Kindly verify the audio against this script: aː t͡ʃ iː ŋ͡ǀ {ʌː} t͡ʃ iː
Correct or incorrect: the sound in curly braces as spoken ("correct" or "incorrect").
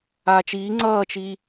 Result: correct